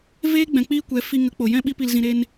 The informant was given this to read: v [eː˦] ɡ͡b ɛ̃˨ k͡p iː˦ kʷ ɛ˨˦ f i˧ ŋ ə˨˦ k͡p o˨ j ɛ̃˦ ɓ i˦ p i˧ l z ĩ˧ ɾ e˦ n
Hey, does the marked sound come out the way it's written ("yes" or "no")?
yes